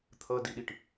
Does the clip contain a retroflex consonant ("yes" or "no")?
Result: yes